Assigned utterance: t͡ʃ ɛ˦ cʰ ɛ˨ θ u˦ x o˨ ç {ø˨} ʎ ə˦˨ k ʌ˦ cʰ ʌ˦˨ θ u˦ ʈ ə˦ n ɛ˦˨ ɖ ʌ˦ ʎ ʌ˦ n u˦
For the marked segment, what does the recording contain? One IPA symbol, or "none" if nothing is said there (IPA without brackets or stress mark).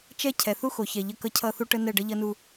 ɛ˨